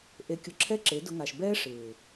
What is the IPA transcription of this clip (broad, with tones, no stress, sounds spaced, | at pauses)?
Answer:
ʔ e˧ kʲ ʊ˧ ǁʰ ɛ˦ ǁ e˨˦ d ʊ˧ ŋ a˨ ʃ b ɛː˦ ʂ ɪː˨